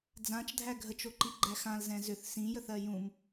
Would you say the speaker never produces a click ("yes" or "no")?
no